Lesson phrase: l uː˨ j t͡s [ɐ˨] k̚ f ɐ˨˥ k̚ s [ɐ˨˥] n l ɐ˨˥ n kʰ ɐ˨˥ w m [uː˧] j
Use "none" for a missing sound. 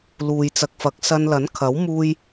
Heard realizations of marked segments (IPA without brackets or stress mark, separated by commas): ɐ˨, ɐ˧, uː˧